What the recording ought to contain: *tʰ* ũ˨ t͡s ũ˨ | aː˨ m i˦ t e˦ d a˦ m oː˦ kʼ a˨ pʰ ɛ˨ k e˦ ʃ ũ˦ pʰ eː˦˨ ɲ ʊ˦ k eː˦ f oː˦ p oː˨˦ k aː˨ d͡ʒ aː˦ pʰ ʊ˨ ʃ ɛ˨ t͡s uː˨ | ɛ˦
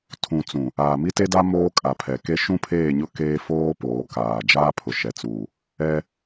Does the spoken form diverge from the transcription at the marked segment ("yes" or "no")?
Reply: no